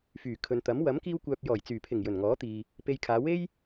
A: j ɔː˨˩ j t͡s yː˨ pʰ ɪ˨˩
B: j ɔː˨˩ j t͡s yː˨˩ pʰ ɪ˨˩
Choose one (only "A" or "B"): B